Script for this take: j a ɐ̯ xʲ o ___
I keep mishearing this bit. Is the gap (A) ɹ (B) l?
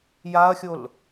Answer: B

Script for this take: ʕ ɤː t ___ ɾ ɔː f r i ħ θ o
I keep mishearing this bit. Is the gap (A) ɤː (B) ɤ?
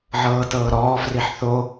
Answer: A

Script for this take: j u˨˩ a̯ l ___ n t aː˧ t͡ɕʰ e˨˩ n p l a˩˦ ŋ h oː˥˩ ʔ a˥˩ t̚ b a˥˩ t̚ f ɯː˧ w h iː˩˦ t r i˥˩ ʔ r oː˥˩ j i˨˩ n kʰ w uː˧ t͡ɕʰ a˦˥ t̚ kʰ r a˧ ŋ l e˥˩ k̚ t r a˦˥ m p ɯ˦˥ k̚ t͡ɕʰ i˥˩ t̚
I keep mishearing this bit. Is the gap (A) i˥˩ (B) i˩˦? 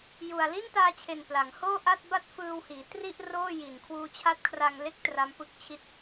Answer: A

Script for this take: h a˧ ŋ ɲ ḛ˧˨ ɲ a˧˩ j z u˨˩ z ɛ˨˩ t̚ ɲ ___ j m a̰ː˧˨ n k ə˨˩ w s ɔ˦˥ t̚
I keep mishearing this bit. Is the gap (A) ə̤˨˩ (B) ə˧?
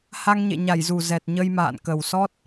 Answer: B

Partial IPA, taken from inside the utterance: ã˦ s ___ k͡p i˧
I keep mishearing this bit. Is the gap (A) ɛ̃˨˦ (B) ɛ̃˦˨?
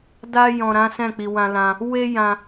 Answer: B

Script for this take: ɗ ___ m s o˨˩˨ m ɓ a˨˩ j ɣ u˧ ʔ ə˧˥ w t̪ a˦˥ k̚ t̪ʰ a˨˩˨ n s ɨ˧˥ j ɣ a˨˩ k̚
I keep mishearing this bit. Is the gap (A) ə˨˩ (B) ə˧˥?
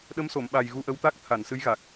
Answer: B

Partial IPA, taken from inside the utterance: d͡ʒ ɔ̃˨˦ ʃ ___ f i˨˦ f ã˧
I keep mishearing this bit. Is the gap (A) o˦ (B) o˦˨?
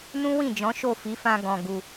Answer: B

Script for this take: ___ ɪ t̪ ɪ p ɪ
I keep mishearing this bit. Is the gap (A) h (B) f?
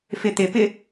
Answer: B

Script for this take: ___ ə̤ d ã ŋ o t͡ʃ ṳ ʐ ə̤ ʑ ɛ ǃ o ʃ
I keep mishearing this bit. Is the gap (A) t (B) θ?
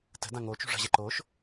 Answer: A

